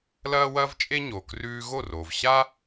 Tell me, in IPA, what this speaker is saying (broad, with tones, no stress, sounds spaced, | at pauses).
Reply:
l ɐː˥ w ɐː˥ v t͡ʃʼ e˥ ɲ oː˩ k r ʉː˧ ɣ o˥˩ r oː˩ v ɕ a˥